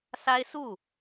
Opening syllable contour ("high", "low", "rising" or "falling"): high